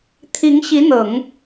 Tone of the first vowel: rising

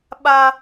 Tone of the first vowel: high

